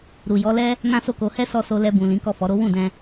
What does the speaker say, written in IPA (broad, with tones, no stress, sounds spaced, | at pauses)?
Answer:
ɾ u˨ j ɔ˨˦ l ɛ˦ | n ã˦ s o˦˨ k o˧ h ɛ˦ s ɔ˧ s o˧ l ɛ˧ b ũ˨ l ĩ˨˦ k ɔ˦˨ f ɔ˨˦ ɾ o˦ w ũ˦˨ d ɛ̃˧